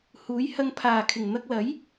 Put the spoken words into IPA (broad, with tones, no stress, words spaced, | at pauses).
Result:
huː˨˥jhɐ˧ŋ pʰaː˨˩kʰɪ˨˩ŋ n̪ɐ˧k̚lɐ˨˥j